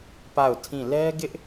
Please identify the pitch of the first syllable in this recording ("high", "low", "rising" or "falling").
falling